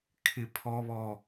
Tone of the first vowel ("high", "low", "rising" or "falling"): low